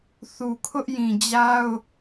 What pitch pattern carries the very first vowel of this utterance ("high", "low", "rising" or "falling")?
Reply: low